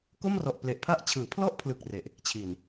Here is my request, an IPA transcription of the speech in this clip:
ko˥˩mrɔ˨˩ʔple˨˩ʔpʰa˥˩ʔ t͡ɕʰɯː˩˦pʰlɔ˥˩ʔpʰlɯ˨˩k̚ re˨˩ʔ | t͡ɕʰi˨˩n

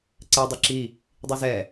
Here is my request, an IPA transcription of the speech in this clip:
ǀɛ dˤeǁi | dˤizɛ

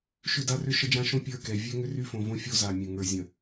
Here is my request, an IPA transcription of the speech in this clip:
ʃʏ˦˨da˦rʏ˦ ʃə˦d͡ʒã˦ ʃõ˦ pʲə˞˦˨kɛ˨ vʲɛ˦ŋʏ˦ry˦fõ˨ võ˦fʲo˦ za˨mʲə̃˨ ŋə˞˨zʲə̃˨

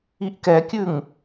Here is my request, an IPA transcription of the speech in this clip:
iʔkɛkʲʉŋ

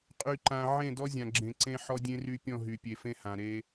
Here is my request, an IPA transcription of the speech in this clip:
qʼy˨ǃã˨ ʕẽ˦˨dɔ˦zʲã˨ɡ͡ǁẽ˨ ǀẽ˦ ħɔ˦dʲẽ˦ry˦ pʲɔ̃˦˨ɦy˨pʲe˨fẽ˦ hã˨ ɾe˦

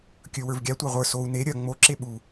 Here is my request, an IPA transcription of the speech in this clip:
kʲɵ wə˞vɡʲa tʷɑʁʷə˞ sou̯ ne ɾʲɐ ŋ͡mo ǁeɓu

